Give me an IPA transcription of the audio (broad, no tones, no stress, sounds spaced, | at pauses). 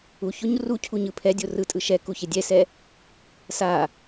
u ç o ɲ r u cʰ u ɲ ɯ pʰ ɛ dʲ o r ɯ tʼ ɯ ʃ ɛ k u ç e dʲ ɛ s ɛ | s a